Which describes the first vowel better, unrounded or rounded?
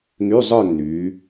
rounded